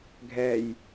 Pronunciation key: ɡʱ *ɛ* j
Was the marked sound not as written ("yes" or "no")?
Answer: no